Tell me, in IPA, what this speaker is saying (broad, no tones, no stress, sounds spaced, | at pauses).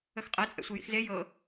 ə x qʼ ɛ t͡sʼ ɛ̰ sʷ i j ḭ x z e j ɤ